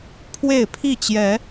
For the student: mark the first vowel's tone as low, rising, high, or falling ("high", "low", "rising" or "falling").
falling